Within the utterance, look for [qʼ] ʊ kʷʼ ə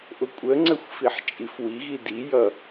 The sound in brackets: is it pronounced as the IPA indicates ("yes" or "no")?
no